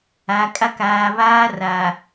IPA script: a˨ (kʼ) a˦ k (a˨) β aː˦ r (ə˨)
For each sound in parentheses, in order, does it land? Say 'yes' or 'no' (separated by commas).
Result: yes, no, no